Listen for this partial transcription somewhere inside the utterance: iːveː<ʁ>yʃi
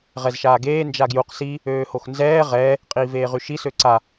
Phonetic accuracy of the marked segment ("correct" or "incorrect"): correct